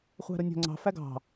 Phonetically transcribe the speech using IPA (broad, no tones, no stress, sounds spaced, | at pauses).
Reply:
χʷ æ̤ ɾ ʊ nʲ ɔ̤ ŋ͡ǀ ɑ̤ f æ ɡ ɑ̤